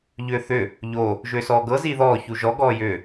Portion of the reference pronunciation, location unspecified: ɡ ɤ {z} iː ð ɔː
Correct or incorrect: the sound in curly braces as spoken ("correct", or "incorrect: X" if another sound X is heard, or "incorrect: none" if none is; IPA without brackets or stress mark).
correct